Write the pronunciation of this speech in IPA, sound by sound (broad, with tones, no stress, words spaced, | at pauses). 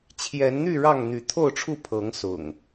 t͡ɕʰjɛ˨˦nn̪y˥˨ ɻɑ˥˨ŋn̪y˨˦ t̪ʰo˥˨ʊ̯ʈ͡ʂʰu˥˨ pʰɤ˨˦ŋsʊ̰˨˩ŋ